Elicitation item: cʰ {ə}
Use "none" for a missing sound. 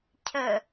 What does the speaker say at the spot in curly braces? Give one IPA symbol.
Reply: ə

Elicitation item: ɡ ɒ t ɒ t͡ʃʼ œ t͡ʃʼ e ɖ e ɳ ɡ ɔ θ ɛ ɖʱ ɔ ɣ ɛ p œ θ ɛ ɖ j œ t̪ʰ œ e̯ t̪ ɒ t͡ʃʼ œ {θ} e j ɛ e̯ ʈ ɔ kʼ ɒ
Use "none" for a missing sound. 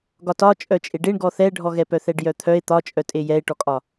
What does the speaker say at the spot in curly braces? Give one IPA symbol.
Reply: tʼ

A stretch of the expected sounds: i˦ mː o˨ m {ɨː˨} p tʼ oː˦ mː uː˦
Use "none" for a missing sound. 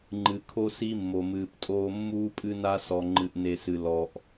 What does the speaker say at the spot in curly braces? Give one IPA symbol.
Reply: ɨː˨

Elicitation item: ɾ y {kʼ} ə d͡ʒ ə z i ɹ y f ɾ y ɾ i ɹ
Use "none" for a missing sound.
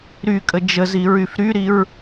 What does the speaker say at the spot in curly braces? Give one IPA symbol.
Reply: kʼ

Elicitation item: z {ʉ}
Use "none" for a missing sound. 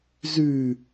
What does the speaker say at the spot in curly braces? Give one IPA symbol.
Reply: ʉ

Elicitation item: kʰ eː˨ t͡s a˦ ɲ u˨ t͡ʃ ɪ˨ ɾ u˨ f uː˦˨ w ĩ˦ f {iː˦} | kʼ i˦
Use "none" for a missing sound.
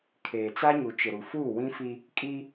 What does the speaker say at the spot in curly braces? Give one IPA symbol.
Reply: i˦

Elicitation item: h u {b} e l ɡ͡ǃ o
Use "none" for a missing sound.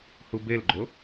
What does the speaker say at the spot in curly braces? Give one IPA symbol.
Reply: b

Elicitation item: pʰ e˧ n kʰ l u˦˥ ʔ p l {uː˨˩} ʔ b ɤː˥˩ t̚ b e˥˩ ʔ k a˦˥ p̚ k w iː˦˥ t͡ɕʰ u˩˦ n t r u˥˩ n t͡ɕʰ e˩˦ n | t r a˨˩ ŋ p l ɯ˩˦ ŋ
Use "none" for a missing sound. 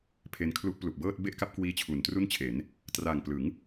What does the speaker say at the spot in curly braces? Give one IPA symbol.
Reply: u˨˩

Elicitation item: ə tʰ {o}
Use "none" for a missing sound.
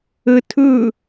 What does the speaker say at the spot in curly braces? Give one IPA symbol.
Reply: ɵ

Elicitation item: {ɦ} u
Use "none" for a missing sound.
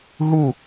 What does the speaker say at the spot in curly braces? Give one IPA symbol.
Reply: ɦ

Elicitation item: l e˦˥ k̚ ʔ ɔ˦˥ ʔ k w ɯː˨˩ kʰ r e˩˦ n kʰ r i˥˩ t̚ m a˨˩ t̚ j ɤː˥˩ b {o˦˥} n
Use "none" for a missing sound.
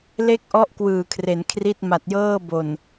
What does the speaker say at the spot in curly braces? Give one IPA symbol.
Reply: o˨˩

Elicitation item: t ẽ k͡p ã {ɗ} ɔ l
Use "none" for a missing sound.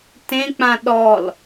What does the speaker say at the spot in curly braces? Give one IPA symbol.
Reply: ɗ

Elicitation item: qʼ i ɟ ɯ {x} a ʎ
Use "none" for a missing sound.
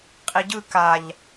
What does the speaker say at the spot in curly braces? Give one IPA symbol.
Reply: k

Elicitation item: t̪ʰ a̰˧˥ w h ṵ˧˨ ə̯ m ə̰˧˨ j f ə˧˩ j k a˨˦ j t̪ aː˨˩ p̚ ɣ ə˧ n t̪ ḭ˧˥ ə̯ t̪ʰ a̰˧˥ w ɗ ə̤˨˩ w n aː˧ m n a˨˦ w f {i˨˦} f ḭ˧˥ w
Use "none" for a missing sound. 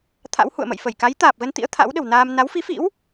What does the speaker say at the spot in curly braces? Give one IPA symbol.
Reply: i˨˦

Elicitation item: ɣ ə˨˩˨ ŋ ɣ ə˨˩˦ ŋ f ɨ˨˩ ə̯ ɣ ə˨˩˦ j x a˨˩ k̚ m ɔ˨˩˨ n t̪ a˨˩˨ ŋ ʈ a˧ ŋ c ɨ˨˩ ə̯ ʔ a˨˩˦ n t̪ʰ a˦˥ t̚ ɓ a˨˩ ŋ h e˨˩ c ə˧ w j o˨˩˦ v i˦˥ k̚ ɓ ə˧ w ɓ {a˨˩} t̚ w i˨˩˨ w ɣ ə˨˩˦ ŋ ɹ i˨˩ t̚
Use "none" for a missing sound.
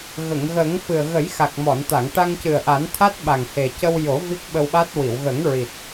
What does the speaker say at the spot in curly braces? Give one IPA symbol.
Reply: a˦˥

